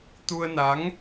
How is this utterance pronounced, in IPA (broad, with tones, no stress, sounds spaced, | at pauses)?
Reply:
t̪ u˧ ə̯ n a˨˦ ŋ